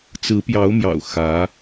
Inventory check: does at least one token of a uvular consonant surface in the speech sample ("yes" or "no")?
no